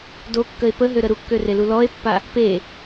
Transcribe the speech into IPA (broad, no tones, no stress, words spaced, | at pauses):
dokːəe̯ pəɦøɾə ɾukːørelu lɔe̯pːa | pe